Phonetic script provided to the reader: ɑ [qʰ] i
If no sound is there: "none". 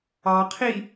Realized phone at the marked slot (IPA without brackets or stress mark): qʰ